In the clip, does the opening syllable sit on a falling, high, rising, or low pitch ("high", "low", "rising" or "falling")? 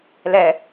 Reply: low